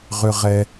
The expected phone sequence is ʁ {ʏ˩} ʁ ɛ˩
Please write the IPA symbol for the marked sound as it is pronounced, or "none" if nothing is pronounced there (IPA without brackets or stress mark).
ʏ˩